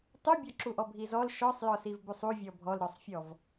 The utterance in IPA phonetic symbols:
tˤubʲɔǁuʔɔ bʱizɔl ʃɔsˤjɔsiv busˤu vʲɔbʱɔlɾɔsˤfʲɔv

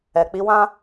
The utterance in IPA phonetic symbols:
ɛ˨k͡pi˨˦wã˦

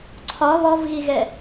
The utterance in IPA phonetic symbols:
ǀʰɒ βɔvɣiɣɛ

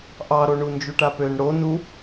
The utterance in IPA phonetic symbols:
ʔɑɾoɳu nd͡ʒuʈapøn ɽon u

